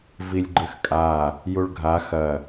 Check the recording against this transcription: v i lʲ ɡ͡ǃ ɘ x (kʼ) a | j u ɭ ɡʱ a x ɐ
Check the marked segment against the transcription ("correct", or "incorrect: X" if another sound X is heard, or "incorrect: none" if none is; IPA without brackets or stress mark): correct